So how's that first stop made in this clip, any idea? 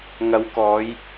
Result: plain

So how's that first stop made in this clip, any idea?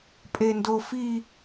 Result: ejective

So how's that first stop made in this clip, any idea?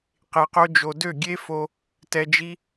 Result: plain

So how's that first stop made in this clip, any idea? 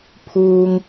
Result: aspirated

